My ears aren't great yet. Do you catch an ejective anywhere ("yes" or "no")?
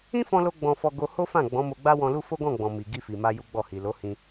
no